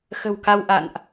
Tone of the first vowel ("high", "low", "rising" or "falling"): low